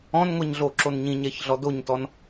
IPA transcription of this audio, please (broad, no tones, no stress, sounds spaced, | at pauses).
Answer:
ɔ̃ n ŋʷ ɛ ɲ ɮ o ǁ o n ɲ ĩ ɲ ɛ ç ɮ ɔ d o ɲ t ɔ n